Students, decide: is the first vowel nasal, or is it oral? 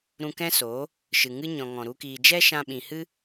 nasal